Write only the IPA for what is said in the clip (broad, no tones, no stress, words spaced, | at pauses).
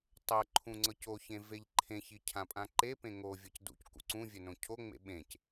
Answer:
tˤɤ ǃʰũŋ͡ǀɤcoçẽ veʎǃʰẽçi cʰãpʼãǃepẽ ŋovʲɤc dṵc kṵǀũvʲœ nõcʰoŋ͡mḛ ɓẽc